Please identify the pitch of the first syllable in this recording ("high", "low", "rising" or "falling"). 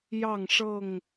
falling